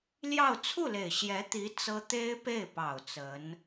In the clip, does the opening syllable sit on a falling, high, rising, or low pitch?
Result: falling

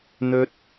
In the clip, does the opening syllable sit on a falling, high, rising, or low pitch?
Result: high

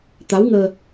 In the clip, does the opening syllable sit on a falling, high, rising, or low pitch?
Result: rising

